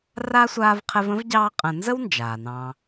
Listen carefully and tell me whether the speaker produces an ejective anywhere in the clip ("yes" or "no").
yes